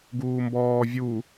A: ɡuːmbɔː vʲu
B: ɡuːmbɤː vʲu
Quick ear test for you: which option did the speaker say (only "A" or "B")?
A